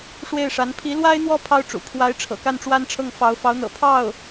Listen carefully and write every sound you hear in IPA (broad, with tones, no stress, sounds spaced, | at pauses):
ʂ w e˥˩ ɪ̯ ʂ a˧˥ n pʰ i˧˥ l w a˥ ɪ̯ n̪ w ɔ˥˩ pʰ ɑ˥ ʊ̯ ʈ͡ʂ ṵ˨˩ pʰ w a˧˥ ɪ̯ ʈ͡ʂʰ ɤ̰˨˩ k a˥˩ n ʈ͡ʂ w a˥ n ʈ͡ʂʰ ɤ˥˩ ŋ f ɑ˧˥ ʊ̯ f ɑ˧˥ ʊ̯ n̪ ɤ̰˨˩ pʰ ɑ˥˩ ʊ̯